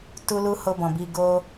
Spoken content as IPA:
t u˦ l u˦ h o˧ b ɔ̃˨ b i˧ ɡ o˦

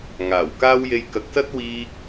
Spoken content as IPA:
ŋ aː˨˩ w k aː˥ w j e˧ j k ɐ˨˥ k̚ s ɐ˥ t̚ w iː˧ k̚

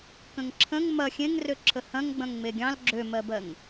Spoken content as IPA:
k ə̃ ŋ ǁʰ ə̃ ŋ m ɐ xʲ ẽ ŋ r ø ǁʰ ə h ɐ̃ ŋ ɡ͡b ɐ̃ ŋ ŋ͡m e ɡʲ ɑ̃ l ɡ͡ǁ ø m ɜ b ɜ ŋ

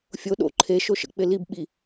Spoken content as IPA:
fʲ o ɗ o̰ ǃʰ e ʃ o ʃ ə̰ k͡p ɪ l i b ɓ i

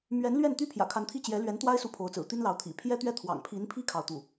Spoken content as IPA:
m ɥ ɛ˧˥ n l ɥ ɛ˥˩ n t̪ y˥ pʰ j ä̰˨˩ kʰ a˧˥ n t̪ʰ i˥˩ t͡ɕ j ɛ˧˥ l ɥ ɛ˧˥ n t̪ w a˥ ɪ̯ s u˥ pʰ o˧˥ ʊ̯ t͡s ɹ̩˨˩ t̪ i˥ n l ɑ˧˥ ʊ̯ t̪ʰ ḭ˨˩ pʰ j ɛ˥ t̪ ɥ ɛ˥ t̪ʰ w ɑ̰˨˩ ŋ pʰ i˧˥ n pʰ i˥ kʰ ɑ˥˧ ʊ̯ t̪ u˥˩

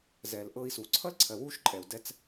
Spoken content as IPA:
z ɛ˨ l ʔ ɤ˧ i̯ s u˨ ǀʰ ʌ˦ l ǀʰ ɜ˨ w u˧ ʃ ǃʼ ɛ˨ u̯ d ɛ˧ t͡s

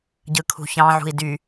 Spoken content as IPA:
ɟ ɯ kʰ ṳ ç ɑ̃ ʕ ṳ i̯ d y

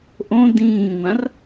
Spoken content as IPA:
ʔ õ d ĩː ŋʷ ã r

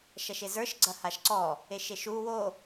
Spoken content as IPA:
ʃ ɐ ʃ e z ə˞ ʃ ɡ͡ǀ ɐ h a ʃ ǀ ɔ | e ʃ e ʃ u w o

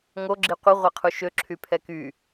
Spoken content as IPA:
ŋ o ɡ͡ǁ i qʷ ə ʁʷ ɛ qʰ u ʃ ø ǁʰ y pʰ ɛ k y

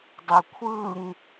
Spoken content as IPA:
dˤ e kʷʰ ɯ ŋ

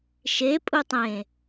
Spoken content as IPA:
ʃ e pʼ u tˤ ẽ

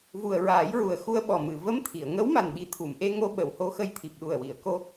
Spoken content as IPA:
v u˨˩ ə̯ ɹ aː˨˩˦ j ɹ u˨˩ ə̯ x u˧ ə̯ ɓ ɔ˨˩ m ɨ˨˩˨ v ə˧˥ m t̪ʰ i˨˩˨ ə̯ ŋ ə˧˥ w m a˨˩ n ɓ i˨˩ t̪ʰ u˨˩˨ m ʔ e˧ ŋ o˧ ɓ ə˨˩˨ w h o˧ x ə˧ j t̪ʰ i˨˩ p̚ ɗ u˨˩ ə̯ w i˨˩˨ ə̯ k o˧

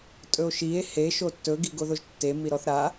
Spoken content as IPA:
tʼ ɵ o̯ ʃ i e̯ h e ʃ o tː ɵ ɡ i ɡ o ð o ʒ tː e m i ɾ ɔ θ ɾ a

